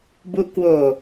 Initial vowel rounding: rounded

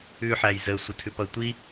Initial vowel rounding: rounded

